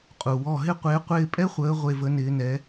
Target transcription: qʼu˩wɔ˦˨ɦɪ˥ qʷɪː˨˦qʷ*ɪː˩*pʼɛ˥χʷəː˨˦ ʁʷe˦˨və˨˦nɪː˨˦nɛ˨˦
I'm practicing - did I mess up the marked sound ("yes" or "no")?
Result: yes